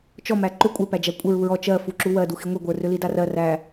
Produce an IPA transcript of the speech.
t͡ʃ ɔ m æ ǃ ʏ kʷʼ ə˞ p æ d͡ʒ æ kʷʼ ə ɹ u ɹ ɔ t͡ʃ ɜ f u ǁ u w ɜ d u x i ŋʷ i ɡʷ ə˞ r ʏ l i d a r ɜ r æ

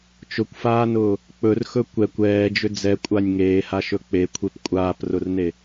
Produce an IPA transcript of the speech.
t͡ʃ ʊ kʷ f aː n ʊː | k͡p ɵ r x ɵ kʷ ɛ kʷ ɛː d͡ʒ ʏ d͡z ɛ kʷʼ a nʲ ŋ eː h a ʃ ɵ k͡p e kʷʰ e p kʷʼ aː p r ʊ r n e

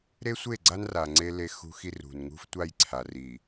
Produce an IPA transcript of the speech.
ɾ e˦ sʷ e˦˨ ɡ͡ǀ a˦ n r a˨ ŋ͡ǀ e˦ l e˦ x ṳ˦ x i˦ r ṳ˨ n ŋ ṳ˦ f tʷ a˦˨ j ǀʰ a˨ r i˨

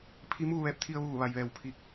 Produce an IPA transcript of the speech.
pʰ i˧˥ m uː˥˨ ʋ ɛː˧˥ p̚ t̪ʰ i˧ ə̯ ʋ uː˧˩ ʋ a˩ j ʋ ɛː˧˩ w pʰ i˧˩ k̚

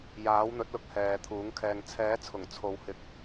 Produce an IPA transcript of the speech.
j aː˨˥ w n̪ ɵ˨˥ t̚ l ʊ˧ k̚ h ɛː˨˧ t̪ʰ uː˨˥ ŋ kʰ ɛː˧ ŋ t͡sʰ ɛː˨˥ t͡sʰ ʊ˨˩ ŋ t͡sʰ o˨˧ w h ɪ˨ k̚

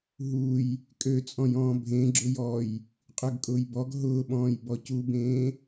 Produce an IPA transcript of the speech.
ɦ u j | kʼ ø t͡sʼ ɔ̃ j ɔ̃ː bʱ ẽ ɡ͡ǁ ʊ j ɔ j | qʼ ø ɡ kʼ ʊː j b ɔ ɡ ɦ ʊː ɓ ɔ̃ː j b ɔ c u b ẽː

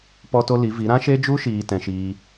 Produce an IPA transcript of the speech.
p ɔ˦ t o˦ l i˨˦ v i˨˦ ɾ ã˦ ʃ e˦ d͡ʒ u˦ ʃ iː˧ t ɛ̃˦ ʃ iː˦

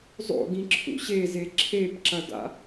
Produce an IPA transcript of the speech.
zˤ o̰ ɡ ĩ ǁʰ ṵ ɕ e z e ǁʰ e p ǁ ɐ d a̰

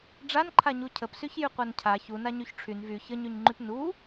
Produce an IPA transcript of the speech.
ɖ͡ʐ a n ǃʰ a ɲ u cʰ ə p s y ç j y qʷ a n cʰ a ç u n a ɲ y ç ʈ͡ʂʰ y n v y ç ə ɲ y ɲ ŋ͡ǃ y p n u

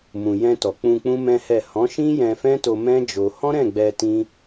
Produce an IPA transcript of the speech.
m ũ˨ j ɛ̃˧ t ɔ˨ k͡p ũ˧ k͡p ũ˦ m ɛ̃˦ h ɛ˦˨ h ɔ̃˨˦ ʃ ĩ˦ j ɛ̃˧ f ɛ̃˦ t o˧ m ɛ̃˦ d͡ʒ o˧ h ɔ̃˦ ɾ ɛ̃˦˨ ɡ͡b ɛ˧ t ĩ˦

